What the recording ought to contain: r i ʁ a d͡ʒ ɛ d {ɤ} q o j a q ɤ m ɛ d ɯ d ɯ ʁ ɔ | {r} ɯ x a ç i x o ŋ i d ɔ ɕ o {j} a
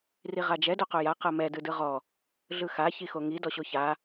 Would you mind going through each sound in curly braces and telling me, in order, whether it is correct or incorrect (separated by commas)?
incorrect, incorrect, incorrect